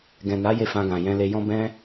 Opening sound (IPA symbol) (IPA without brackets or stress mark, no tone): ɡ